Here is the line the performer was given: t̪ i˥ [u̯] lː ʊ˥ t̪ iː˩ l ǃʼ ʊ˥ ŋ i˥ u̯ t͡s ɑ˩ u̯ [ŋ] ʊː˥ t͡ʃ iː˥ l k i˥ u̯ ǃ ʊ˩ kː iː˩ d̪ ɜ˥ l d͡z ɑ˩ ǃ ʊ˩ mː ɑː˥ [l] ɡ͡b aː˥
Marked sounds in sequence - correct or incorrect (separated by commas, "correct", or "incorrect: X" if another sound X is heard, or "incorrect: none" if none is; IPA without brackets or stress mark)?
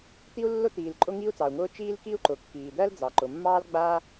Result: correct, correct, correct